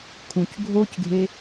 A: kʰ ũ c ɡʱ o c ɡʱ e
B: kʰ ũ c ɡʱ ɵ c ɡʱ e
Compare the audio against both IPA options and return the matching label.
A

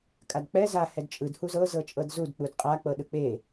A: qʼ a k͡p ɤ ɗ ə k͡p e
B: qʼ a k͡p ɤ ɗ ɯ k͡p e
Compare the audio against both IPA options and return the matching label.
B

